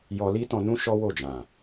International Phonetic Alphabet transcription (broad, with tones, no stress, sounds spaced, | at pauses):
j ɔ˧ l i˦ t ɔ̃˧ n ũ˦ ʃ ɔ˦ w o˦˨ d͡ʒ ã˨